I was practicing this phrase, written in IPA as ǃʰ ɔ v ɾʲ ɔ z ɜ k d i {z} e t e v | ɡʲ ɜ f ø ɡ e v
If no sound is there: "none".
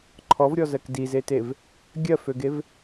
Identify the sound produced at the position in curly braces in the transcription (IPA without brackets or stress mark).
z